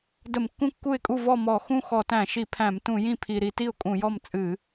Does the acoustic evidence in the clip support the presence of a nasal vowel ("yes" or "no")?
yes